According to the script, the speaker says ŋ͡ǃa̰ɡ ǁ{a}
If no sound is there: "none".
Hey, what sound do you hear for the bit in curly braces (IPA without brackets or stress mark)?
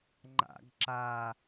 a